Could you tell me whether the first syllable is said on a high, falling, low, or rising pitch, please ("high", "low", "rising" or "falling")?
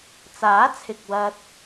rising